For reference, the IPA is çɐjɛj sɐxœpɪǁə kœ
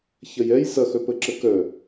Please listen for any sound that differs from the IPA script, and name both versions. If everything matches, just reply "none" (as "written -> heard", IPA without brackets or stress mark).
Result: ɪ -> ə